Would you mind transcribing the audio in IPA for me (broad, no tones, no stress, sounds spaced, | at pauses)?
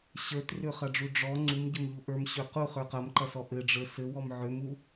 ɕ ə˞ t r ø χ ɐ ɖ͡ʐ u ɖ͡ʐ ɔ ŋ͡ǀ u m ɟ ə m ʎ u ʔ ə˞ m ɕ ø q u χ ə˞ q ɐ m ǃ ɐ s ɔ ʔ ɘ ɖ͡ʐ ə˞ s ɘ w ɔ m ʕ ø m u